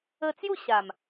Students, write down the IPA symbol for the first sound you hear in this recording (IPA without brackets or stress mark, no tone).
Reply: ə